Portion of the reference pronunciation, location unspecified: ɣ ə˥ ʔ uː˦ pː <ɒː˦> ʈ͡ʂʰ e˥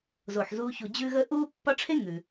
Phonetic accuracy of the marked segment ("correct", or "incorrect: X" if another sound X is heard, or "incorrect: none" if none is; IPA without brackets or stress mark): incorrect: ɒ˦